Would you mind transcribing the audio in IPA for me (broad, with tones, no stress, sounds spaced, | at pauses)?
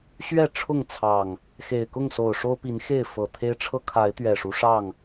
ɕ ɥ ɛ˥˨ ʈ͡ʂʰ ʊ˥˨ ŋ t͡sʰ ɑ˨˩ ŋ | x e˨˩ ɪ̯ k ʊ˥˨ ŋ s o˨˩ ʊ̯ ʂ o˦ ʊ̯ p i˨˦ n x e˥˨ ɪ̯ f ɤ˨˩ t̪ʰ e˦ ɪ̯ ʈ͡ʂʰ ɤ˦ kʰ a˨˦ ɪ̯ t̪ ɥ ɛ˨˩ ʂ u˦ ʂ ɑ˥˨ ŋ